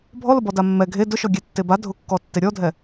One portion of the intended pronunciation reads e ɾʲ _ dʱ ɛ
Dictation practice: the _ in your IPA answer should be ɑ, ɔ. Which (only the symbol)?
ɔ